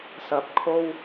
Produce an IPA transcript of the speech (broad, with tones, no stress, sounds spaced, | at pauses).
s ɐ˨˥ p̚ kʰ o˧ w